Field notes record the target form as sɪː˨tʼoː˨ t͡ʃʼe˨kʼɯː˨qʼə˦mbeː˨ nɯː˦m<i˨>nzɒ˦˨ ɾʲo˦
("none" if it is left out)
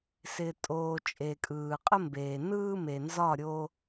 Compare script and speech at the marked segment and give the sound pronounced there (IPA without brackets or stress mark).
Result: e˨